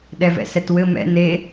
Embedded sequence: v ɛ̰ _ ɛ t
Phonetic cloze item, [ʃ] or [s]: s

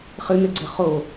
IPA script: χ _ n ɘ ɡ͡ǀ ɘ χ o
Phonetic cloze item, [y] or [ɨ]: ɨ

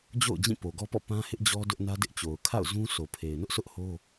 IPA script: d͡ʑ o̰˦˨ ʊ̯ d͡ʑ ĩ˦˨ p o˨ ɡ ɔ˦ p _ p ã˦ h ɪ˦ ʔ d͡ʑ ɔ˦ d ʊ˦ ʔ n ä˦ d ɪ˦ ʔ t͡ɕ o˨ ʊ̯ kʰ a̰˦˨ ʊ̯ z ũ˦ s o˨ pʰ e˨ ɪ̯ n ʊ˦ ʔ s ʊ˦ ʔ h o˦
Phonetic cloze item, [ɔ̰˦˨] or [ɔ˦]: ɔ̰˦˨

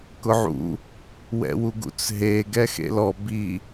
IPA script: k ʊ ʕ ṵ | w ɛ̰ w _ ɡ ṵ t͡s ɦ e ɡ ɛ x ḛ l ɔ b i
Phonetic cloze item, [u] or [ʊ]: u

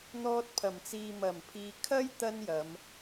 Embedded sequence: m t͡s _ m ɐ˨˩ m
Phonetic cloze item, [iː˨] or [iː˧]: iː˨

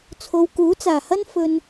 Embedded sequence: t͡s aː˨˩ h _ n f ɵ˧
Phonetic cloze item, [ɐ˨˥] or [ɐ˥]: ɐ˥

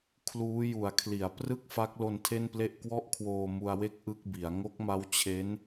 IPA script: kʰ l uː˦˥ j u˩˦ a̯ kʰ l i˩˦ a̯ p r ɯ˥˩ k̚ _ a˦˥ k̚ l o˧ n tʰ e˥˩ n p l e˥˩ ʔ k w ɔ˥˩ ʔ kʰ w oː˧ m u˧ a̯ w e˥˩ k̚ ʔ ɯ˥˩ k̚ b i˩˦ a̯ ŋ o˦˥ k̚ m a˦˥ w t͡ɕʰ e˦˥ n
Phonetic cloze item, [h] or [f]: f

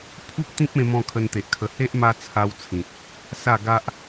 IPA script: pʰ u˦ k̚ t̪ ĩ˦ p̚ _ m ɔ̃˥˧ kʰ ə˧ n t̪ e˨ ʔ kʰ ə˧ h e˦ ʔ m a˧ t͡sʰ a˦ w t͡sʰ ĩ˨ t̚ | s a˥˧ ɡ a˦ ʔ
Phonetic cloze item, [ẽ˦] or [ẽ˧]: ẽ˧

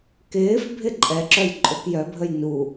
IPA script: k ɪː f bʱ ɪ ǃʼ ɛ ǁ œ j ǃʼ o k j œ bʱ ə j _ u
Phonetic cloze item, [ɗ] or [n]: n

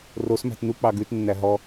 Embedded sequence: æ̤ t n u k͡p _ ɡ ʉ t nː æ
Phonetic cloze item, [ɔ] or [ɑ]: ɑ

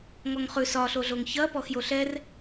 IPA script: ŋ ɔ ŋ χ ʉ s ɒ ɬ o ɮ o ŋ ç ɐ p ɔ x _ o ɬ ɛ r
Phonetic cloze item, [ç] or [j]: j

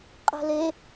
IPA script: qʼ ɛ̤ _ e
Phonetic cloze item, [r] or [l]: l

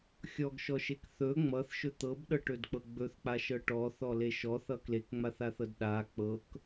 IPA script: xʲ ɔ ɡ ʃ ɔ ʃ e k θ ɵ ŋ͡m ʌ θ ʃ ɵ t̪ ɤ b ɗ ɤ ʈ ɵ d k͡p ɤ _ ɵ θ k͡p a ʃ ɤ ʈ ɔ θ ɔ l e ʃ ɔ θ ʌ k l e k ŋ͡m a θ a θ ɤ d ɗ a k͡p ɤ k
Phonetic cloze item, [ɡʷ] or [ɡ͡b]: ɡ͡b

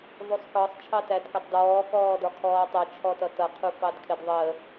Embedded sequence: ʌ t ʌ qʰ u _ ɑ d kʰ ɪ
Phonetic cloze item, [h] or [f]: f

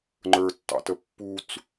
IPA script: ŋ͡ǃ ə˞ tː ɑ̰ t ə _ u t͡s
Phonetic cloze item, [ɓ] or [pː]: pː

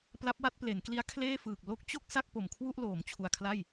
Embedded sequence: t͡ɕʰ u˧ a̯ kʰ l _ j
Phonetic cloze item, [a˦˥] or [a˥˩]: a˥˩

